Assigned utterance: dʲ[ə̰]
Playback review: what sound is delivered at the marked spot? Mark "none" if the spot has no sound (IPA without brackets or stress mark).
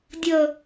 ə